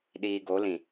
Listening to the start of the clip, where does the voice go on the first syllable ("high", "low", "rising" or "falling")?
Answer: low